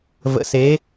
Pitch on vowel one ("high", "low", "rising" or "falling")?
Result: rising